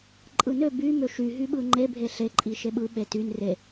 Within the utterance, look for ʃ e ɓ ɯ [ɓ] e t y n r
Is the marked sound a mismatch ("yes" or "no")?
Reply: no